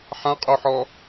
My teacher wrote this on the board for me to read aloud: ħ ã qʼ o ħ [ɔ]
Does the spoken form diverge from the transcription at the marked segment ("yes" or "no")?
no